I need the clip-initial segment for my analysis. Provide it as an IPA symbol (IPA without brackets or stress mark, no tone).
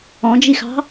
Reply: ɔ̃